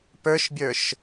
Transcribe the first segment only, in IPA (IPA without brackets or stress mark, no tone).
p